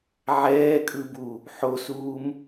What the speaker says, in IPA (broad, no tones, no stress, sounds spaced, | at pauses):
ʕ ɛː kʼ ɯ b u | ħ o s uː m